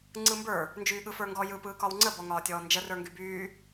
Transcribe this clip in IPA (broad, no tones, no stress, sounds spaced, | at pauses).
ŋ͡ǀ ɯ m b ə˞ | n d͡ʒ yː ɠ ɯ f ə˞ ŋ ɡ ɔ j ɯ p ɯː k ɒ w ŋ͡ǀ ə b ɔ ŋ ɒː tʲ ɔː n d͡ʒ ə r ə˞ ŋ ɡ y b yː